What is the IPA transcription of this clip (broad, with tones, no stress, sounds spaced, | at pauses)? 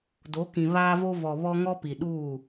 d o˨˦ k ĩ˨ β aː˦ v o˦ v ɔ˨ β ɔ˦ ŋ ɔ˦ p i˨ ɗ uː˦˨